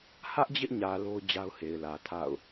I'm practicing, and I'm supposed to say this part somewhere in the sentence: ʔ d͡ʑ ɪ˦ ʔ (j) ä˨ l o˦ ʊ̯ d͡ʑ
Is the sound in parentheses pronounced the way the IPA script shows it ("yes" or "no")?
no